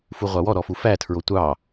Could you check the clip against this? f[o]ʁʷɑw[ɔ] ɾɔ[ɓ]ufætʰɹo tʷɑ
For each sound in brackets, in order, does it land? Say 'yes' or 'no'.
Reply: no, yes, no

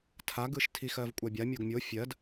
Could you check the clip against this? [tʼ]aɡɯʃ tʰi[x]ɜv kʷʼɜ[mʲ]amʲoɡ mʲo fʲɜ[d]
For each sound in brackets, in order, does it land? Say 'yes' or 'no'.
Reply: no, yes, no, yes

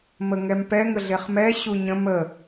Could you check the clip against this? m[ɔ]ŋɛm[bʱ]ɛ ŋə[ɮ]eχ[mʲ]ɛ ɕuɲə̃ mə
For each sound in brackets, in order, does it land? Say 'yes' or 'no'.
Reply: no, no, yes, no

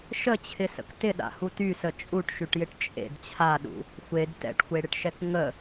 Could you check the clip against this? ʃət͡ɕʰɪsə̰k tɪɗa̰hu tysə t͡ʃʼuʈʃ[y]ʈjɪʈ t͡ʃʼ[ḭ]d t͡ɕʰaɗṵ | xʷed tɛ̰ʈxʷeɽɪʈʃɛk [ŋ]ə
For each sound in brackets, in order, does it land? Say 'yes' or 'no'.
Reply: yes, no, yes

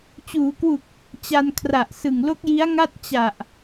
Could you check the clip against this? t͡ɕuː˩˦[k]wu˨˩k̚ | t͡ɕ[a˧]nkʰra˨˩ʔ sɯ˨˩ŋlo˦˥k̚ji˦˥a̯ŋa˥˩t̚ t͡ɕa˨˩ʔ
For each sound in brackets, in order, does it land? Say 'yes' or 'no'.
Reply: yes, yes

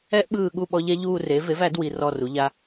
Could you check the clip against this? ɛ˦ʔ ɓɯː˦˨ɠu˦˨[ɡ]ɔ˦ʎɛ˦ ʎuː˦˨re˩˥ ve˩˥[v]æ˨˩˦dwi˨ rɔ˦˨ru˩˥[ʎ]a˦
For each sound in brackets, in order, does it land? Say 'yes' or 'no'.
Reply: no, yes, yes

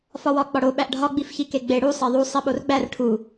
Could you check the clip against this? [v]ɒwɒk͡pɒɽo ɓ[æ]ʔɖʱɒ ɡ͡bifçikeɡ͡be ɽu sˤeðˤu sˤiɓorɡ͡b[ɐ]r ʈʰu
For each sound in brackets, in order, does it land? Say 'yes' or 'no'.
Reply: no, yes, no

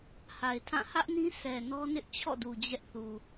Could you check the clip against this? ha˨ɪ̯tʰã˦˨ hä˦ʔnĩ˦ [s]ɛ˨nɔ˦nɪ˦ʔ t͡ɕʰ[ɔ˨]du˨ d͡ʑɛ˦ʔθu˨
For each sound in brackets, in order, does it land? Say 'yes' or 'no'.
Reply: yes, no

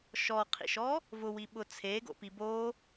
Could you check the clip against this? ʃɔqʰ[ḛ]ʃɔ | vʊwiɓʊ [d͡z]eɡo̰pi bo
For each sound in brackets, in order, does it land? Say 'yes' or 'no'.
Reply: no, no

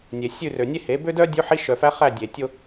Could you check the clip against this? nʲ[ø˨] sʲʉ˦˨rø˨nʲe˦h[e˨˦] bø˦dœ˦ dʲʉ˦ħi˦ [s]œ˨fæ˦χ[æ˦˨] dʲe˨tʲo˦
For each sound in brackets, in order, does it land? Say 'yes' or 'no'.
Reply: no, yes, no, yes

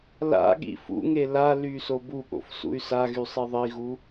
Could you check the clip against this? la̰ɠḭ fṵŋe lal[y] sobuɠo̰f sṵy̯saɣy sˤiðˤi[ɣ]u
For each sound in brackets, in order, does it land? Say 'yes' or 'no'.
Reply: yes, yes

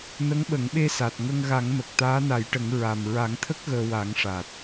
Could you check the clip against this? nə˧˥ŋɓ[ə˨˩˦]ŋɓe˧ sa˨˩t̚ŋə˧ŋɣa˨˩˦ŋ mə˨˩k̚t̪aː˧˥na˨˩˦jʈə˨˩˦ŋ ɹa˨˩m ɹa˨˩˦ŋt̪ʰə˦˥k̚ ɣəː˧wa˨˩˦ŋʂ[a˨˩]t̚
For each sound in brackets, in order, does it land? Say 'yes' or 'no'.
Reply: yes, no

